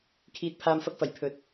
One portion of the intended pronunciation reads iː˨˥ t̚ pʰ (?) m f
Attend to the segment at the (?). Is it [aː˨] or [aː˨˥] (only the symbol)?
aː˨